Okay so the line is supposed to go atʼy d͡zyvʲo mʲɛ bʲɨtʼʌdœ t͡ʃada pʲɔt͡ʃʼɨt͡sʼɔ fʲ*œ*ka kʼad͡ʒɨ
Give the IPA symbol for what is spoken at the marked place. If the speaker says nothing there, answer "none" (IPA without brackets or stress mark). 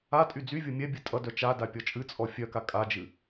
œ